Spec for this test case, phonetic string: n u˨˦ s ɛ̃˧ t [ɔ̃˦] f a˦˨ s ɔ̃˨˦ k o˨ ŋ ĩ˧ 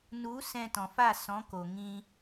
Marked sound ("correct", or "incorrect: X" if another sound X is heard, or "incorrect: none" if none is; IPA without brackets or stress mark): incorrect: ɔ̃˨